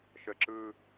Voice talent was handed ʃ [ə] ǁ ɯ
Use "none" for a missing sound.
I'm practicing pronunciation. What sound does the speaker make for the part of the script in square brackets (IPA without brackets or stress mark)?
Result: ə